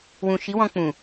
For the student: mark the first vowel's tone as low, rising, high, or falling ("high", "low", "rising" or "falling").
low